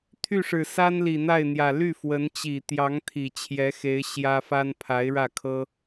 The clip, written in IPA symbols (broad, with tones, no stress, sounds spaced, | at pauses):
t̪ʰ y˥˩ ʂ ɻ̩˨˩ s a˥ n l i˨˩ n̪ a˥˩ ɪ̯ n̪ j ä˨˩ l y˥˩ f w ə˧˥ n t͡ɕ i˨˩ t̪ j ɑ˧˥ ŋ t̪ʰ i˨˩ t͡ɕʰ j ɛ˧˥ x e˧˥ ɪ̯ ɕ j ä˥ f a˥ n pʰ a˧˥ ɪ̯ ɻ ä˥˩ kʰ ɤ˥